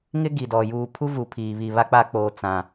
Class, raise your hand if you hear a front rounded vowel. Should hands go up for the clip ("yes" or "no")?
no